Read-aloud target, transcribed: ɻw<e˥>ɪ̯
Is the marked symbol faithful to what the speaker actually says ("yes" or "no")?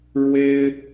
yes